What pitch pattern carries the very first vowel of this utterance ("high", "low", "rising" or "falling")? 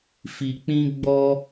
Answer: low